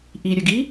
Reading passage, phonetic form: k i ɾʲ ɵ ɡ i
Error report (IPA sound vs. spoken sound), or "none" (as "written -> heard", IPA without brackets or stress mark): k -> ʔ